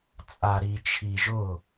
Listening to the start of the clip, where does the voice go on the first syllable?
low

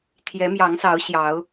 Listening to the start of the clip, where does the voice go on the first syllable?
rising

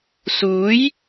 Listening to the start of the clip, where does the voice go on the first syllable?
rising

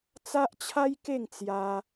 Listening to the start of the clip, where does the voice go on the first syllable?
high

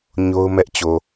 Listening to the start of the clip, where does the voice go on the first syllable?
high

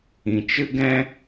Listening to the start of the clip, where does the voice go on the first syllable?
low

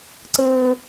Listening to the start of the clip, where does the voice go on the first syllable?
low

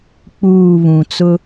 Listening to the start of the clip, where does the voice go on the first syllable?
falling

